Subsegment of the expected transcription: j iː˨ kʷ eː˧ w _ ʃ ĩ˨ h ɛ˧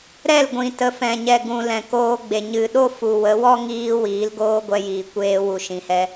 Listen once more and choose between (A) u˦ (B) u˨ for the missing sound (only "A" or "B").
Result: B